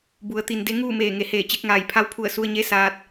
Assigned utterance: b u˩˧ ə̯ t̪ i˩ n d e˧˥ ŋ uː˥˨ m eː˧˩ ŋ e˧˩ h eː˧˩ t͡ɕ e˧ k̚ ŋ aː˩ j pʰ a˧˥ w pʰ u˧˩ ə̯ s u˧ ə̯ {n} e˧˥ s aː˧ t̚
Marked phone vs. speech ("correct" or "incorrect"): incorrect